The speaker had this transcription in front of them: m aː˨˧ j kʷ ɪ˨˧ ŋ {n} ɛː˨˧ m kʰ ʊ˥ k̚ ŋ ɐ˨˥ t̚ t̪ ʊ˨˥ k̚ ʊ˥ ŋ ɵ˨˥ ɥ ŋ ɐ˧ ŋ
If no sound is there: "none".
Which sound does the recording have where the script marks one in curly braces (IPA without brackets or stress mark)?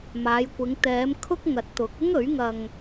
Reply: t̪